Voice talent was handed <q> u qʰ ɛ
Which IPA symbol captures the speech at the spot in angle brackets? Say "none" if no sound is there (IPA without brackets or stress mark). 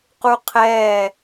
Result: q